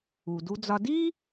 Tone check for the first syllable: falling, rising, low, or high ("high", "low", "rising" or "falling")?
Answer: low